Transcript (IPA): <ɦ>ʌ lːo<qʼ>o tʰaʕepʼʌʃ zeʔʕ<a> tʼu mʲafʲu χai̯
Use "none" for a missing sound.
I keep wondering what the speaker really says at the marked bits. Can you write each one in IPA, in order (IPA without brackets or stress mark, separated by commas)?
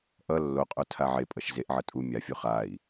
ʔ, qʼ, ʌ